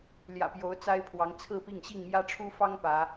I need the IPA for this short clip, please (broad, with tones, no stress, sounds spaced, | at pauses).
l j ä̰˨˩ p j o˨˦ ʊ̯ t͡s a˦ ɪ̯ pʰ w ɑ˨˦ ŋ t͡sʰ ɹ̩˥˨ p i˥˨ ŋ ɕ i˥˨ ŋ m j ä˦ ʈ͡ʂʰ u˦ f ɑ˦ ŋ p ä˨˦